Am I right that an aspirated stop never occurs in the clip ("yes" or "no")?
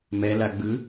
yes